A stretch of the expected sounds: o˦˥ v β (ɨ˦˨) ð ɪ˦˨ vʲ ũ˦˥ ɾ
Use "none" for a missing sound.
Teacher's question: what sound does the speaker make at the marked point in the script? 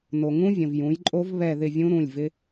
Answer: ɛ˦˨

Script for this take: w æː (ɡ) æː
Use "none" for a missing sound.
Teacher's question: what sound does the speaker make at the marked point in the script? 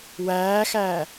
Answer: x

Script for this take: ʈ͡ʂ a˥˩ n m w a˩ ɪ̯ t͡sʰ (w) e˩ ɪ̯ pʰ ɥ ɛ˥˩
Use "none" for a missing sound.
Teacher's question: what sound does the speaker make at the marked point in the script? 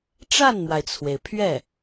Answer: w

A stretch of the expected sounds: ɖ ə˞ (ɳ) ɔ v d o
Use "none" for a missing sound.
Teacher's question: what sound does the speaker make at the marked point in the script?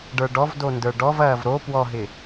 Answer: ɖ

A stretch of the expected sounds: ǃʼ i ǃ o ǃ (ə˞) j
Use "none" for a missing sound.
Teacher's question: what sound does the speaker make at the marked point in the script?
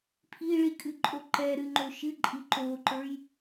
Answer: ə˞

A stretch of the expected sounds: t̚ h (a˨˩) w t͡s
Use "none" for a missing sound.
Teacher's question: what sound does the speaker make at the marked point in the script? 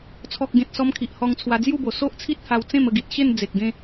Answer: a˧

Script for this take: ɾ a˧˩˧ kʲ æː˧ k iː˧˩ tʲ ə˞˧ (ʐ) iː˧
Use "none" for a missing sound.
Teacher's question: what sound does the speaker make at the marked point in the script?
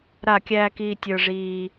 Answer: ʐ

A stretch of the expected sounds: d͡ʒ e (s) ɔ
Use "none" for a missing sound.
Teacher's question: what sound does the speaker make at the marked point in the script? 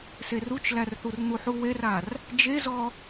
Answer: z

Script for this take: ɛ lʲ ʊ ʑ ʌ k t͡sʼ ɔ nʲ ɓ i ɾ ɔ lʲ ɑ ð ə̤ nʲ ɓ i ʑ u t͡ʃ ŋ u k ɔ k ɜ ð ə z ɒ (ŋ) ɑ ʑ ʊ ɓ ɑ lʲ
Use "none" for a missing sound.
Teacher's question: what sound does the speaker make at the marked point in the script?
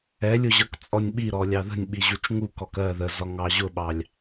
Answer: ŋ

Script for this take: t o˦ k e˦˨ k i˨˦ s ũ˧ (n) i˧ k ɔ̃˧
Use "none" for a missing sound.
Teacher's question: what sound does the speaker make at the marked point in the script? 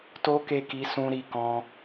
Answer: ɾ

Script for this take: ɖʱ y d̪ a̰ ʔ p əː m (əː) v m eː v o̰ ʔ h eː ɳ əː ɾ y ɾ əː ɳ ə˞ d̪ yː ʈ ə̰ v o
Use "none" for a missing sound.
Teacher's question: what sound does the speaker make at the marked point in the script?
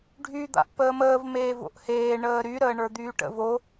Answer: əː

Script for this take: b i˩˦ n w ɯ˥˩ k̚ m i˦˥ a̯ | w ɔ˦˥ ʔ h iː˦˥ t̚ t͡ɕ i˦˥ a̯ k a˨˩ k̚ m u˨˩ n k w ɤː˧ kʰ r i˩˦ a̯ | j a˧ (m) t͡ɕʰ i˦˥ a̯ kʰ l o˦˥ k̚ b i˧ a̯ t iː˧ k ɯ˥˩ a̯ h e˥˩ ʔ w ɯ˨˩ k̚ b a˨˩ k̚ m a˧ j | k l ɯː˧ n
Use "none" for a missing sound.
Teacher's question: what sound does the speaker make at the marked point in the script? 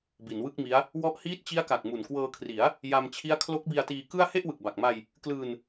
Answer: m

